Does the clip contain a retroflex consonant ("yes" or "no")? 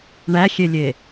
yes